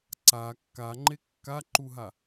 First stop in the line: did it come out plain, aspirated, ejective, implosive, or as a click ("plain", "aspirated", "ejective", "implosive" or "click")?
click